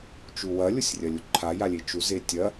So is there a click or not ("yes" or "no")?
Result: yes